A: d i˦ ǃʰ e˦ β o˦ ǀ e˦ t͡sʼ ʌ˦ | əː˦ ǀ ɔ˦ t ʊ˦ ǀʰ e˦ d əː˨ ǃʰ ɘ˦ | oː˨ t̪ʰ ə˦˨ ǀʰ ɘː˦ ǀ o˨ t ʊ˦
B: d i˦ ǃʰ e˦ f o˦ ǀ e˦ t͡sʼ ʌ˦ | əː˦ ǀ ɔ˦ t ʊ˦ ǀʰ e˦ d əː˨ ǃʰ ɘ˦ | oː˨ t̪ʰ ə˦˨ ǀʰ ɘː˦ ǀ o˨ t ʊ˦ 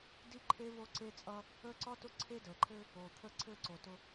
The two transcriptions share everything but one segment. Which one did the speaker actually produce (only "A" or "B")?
A